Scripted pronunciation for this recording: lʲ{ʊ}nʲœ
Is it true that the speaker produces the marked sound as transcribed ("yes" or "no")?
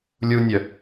no